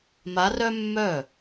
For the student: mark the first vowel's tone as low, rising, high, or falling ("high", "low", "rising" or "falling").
rising